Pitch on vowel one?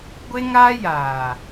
high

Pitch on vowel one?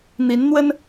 rising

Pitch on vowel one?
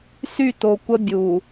falling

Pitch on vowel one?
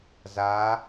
rising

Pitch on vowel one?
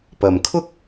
low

